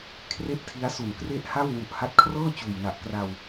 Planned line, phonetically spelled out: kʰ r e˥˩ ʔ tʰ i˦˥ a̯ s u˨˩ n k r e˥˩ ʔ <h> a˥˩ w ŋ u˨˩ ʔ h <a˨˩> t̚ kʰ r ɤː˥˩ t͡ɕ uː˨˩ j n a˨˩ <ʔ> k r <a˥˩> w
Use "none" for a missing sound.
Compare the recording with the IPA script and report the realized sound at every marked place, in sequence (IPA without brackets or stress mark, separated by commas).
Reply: h, a˦˥, ʔ, a˧